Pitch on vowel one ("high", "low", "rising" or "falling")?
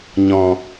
low